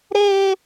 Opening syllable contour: high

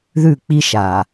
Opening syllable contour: falling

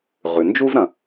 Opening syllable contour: low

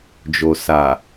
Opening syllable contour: low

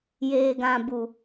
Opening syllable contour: low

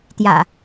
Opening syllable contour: low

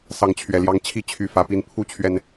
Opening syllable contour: rising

